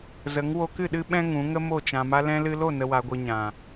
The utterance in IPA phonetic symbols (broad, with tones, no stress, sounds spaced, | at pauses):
z ə˨˦ ŋ w o˧ k ɨ˦˨ ɗ ɨ˧ ɓ ɛ̃˧ ŋ ũ˨˦ ŋ ə˦ m o˦˨ t͡ʃ ã˨ m a˧ l ɛ̃˧ l ɨ˧ l o˦˨ n ə˨ w a˨ ɡʷ ɨ˨ ɲ ã˨